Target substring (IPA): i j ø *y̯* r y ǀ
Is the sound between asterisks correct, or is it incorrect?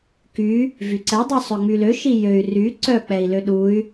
correct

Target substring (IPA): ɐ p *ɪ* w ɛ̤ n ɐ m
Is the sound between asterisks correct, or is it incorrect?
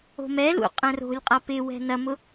correct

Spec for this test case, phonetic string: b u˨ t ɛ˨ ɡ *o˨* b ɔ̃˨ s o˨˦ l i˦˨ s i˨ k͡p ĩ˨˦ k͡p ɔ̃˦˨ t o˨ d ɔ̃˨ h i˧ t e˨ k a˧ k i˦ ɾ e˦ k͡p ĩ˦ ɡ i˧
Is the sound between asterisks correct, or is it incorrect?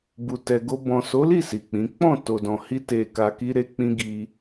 incorrect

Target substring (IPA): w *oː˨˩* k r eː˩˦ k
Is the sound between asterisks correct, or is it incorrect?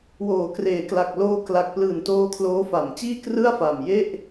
incorrect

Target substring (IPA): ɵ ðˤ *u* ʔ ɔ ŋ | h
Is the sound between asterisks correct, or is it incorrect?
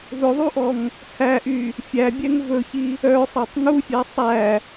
correct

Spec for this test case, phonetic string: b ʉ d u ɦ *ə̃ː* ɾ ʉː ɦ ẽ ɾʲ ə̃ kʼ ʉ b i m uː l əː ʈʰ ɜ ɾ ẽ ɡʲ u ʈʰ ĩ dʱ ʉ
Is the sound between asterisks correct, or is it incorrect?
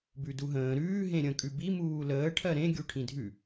correct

